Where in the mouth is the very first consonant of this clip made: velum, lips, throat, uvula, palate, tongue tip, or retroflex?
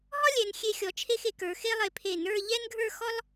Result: throat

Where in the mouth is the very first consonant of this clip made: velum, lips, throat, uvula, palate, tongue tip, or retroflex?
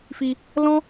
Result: lips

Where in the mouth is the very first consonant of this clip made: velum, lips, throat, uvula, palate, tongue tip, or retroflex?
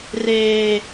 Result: tongue tip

